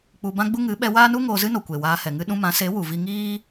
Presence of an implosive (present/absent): present